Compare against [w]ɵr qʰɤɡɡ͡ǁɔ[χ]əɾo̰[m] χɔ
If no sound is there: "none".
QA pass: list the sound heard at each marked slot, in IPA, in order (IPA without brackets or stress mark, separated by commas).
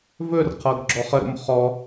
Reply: v, χ, m